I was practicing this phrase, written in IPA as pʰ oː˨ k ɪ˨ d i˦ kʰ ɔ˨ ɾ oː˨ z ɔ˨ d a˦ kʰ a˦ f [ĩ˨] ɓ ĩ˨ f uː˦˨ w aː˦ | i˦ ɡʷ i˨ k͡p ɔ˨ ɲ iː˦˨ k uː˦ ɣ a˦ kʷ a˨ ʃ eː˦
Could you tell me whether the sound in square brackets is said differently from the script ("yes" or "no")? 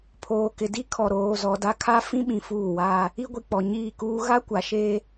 yes